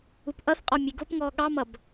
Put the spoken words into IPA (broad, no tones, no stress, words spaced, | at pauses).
upʔʌθqʼɔ mʲeɡopŋɔː ɠɑmʌb